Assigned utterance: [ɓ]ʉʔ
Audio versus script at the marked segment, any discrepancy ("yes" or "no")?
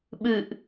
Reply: no